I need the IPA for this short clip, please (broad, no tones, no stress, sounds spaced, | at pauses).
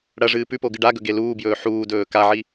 ɽ ɐ ʐ ɨː p ʉ p o ɡ ɨ ɖ a ɡ ɵ ɡ e l uː b j ɵː ħ uː d ɵː k a ʕ i